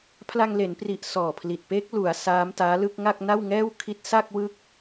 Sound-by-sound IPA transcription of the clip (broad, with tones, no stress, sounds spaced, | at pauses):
pʰ l a˧ ŋ l e˩˦ n p r i˨˩ ʔ s ɔː˨˩ pʰ l i˨˩ t̚ p eː˦˥ k̚ l u˩˦ a̯ s aː˦˥ m t aː˦˥ l ɯ˥˩ k̚ ŋ a˥˩ k̚ n a˥˩ w ŋ ɛː˥˩ w kʰ i˦˥ t̚ s a˥˩ k̚ w ɯ˥˩ k̚